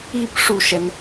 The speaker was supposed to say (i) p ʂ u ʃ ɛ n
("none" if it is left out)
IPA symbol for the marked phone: i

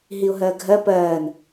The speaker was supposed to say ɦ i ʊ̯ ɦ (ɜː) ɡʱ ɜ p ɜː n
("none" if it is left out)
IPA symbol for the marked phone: ɜ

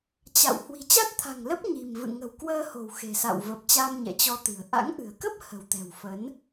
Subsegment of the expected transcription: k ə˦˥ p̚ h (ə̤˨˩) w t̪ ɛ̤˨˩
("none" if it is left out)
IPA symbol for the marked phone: ə̤˨˩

